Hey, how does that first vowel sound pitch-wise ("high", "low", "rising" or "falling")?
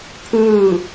falling